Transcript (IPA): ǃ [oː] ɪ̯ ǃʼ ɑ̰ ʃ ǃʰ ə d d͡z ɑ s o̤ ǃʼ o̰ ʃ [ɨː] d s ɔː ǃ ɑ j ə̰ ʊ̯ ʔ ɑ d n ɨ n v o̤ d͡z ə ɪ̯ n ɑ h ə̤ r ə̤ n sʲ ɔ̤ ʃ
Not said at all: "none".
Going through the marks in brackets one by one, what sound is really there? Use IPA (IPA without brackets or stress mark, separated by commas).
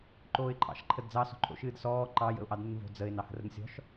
oː, ɨː